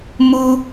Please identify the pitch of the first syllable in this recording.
high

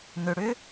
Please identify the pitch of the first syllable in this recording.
low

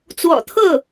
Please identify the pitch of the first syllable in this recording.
low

